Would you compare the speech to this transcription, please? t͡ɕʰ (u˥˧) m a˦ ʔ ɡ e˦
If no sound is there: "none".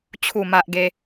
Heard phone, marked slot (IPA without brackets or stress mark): u˥˧